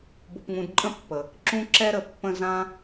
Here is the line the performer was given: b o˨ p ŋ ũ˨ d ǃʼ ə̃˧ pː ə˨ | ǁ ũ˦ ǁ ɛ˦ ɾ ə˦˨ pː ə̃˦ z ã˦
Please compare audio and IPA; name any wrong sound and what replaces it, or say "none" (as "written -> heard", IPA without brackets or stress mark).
none